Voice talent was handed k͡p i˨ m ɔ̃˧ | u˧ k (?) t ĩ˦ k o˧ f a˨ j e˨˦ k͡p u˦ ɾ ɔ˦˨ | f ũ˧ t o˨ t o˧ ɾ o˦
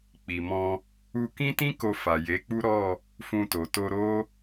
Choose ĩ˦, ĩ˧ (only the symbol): ĩ˦